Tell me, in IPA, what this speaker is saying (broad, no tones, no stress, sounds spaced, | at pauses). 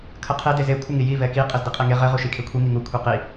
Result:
kʰ ə qʰ e d e z e kʷʰ ə ŋ i j i v ɛ k i qʼ ɘ z d i qʼ e ŋ e ʁ ɘ ʁ u ʃ i kʰ e kʷʰ i ŋ i ŋ u kʷʰ i q i